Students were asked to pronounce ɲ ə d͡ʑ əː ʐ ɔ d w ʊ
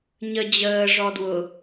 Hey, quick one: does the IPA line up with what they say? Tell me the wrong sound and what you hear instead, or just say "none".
none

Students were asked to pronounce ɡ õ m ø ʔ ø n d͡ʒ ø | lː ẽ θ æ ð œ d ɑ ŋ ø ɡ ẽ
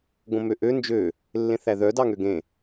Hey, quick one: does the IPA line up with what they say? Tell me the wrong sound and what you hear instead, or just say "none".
none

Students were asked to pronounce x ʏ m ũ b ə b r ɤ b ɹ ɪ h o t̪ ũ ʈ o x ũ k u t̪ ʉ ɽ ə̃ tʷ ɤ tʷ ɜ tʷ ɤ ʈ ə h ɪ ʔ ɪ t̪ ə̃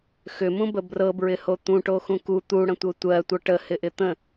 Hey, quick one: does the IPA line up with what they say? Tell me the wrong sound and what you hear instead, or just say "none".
ʉ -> u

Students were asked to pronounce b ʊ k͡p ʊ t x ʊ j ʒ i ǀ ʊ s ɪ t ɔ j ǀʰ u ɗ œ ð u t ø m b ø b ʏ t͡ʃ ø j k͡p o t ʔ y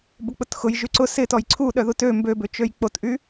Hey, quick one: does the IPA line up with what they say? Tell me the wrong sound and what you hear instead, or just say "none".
i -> y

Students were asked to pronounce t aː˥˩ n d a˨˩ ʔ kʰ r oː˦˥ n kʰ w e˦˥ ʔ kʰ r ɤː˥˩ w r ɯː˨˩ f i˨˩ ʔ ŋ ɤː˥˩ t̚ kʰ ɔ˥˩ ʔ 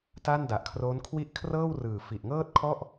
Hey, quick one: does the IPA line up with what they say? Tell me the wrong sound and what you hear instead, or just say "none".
e˦˥ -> i˦˥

